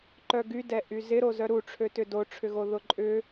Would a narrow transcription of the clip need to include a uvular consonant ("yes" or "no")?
no